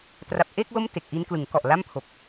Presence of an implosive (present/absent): absent